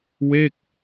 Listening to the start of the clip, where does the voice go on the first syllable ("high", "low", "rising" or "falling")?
falling